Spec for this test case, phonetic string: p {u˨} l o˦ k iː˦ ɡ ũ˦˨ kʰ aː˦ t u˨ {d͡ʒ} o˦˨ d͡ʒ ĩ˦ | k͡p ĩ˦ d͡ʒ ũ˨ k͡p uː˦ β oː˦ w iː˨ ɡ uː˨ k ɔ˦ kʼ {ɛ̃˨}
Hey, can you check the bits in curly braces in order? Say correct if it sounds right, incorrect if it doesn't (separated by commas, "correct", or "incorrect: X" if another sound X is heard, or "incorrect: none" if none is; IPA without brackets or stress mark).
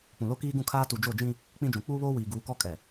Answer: incorrect: ũ˨, correct, incorrect: ɛ˨